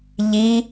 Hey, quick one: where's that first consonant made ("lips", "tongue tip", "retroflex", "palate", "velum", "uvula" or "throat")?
palate